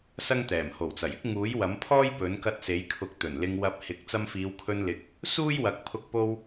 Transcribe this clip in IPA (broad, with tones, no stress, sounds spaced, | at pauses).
s ɐ˥ ŋ t̪ ɛː˨˩ m h o˨˩ w t͡s ɐ˨˩ j ɪ˥ k̚ ŋ uː˨˥ j w ɐ˨˥ m pʰ ɔː˥ j p ɵ˨˥ n k ɐ˧ t̚ s e˨˥ j kʰ ʊ˨˥ k̚ t̪ ɵ˨˩ n l ɪ˧ ŋ w ɐ˧ p̚ h ɪ˨˥ k̚ t͡s ɐ˧ m f iː˨˧ w kʰ ɵ˧ n l ɪ˨˥ k̚ | s uː˥ j w ɐ˨˥ k̚ pʰ ʊ˧ k̚ p o˧ w